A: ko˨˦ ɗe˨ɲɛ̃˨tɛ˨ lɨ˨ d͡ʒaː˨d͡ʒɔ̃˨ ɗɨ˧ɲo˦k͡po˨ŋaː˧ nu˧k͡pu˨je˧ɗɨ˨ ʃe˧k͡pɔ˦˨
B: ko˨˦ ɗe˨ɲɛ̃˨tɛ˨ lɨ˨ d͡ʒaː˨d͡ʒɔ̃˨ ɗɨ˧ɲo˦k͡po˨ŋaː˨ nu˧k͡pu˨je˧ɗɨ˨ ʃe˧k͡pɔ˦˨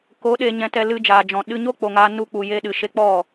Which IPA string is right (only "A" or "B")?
A